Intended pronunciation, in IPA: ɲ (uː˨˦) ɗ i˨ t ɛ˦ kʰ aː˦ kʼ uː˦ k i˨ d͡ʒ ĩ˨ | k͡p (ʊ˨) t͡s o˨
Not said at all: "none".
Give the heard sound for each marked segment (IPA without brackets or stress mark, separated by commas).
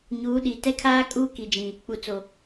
uː˨˦, u˨